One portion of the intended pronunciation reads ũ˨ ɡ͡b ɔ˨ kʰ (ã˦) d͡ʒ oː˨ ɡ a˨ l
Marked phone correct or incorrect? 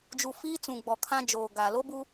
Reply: correct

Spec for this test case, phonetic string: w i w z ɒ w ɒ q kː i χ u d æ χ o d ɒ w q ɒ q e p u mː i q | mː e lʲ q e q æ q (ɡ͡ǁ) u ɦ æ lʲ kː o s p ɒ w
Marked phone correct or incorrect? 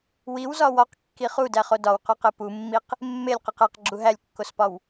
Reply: correct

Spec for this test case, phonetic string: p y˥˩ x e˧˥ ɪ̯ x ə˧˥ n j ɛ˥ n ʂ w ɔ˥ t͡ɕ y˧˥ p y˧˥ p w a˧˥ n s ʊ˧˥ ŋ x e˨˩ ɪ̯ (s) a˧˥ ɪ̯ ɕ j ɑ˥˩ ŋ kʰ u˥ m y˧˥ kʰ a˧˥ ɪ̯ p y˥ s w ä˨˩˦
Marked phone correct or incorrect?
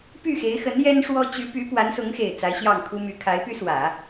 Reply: incorrect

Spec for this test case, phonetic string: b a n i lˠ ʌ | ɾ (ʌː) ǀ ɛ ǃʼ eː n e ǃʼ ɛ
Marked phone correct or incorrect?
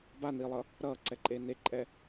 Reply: correct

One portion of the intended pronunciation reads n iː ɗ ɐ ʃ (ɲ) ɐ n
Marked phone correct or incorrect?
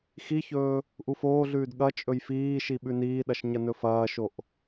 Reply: correct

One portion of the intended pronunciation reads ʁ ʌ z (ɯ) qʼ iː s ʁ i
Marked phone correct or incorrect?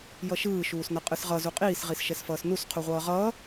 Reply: incorrect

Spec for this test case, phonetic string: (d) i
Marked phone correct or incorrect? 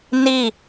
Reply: incorrect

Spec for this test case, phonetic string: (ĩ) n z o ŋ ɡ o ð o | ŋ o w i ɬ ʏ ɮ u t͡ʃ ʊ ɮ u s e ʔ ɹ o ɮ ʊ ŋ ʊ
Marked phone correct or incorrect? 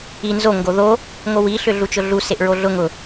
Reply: incorrect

